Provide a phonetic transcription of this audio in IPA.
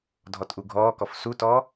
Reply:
dʱɔtʔuɡʱɔːkɔf sutɔː

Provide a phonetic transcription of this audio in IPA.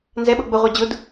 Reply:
nzɛɓɤ ɡ͡bʊʁʷa d͡ʑʊd

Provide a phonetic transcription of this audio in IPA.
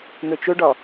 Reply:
n̪ɵt͡ʃɵɖɒ

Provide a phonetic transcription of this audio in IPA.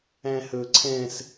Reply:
æ̃hɵǀʰɛ̃s

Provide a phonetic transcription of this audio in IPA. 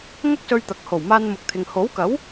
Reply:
ŋɐ˥k̚sɵ˧ɥt̪ɐ˨k̚ho˨˩w maː˧nmʊ˨˥k̚t̪ʰɪ˨ŋ ho˨˥wkɐ˨˥w

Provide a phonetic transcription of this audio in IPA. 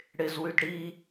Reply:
ɽɪzwyd ɽi

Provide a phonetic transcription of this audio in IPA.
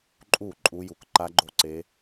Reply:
ǃʼu˧˩ ǃʼu˦˥ju˧k ǃa˦˥ɡ͡ǃo˥˨ǀe˦˥

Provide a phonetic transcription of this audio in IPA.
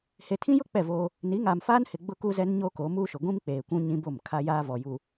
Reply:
he˨tʰĩ˦jʊ˦ k͡pɛ˦˨voː˦ | ni˨˦ŋaː˨mfaː˦nhɪ˨ ɡ͡bʊ˦kuː˦zɛ˦nɲoː˦ koː˨˦muː˦ʃʊ˨ ɡʷĩ˦m k͡peː˨kʷũ˦ ɲĩ˦bo˦˨mkʰa˦jaː˦ vɔ˨ju˨

